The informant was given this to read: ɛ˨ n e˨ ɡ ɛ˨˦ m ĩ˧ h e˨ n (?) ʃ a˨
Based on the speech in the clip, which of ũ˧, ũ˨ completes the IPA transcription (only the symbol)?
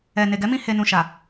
ũ˨